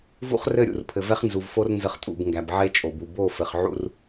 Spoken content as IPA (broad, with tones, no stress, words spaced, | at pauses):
vṵ˦χrɘ˦˨ ɾʲṵ˨rpʰɘ˨vɛ˦χ nzu˨vfo˦r nzə˦χtʼṵ˦˨b ŋɡæ˨bʕe˦t͡ʃʼo˨bu˨ bo˦˨fɘ˨χʕṵ˦r